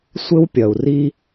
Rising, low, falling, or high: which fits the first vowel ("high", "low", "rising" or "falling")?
high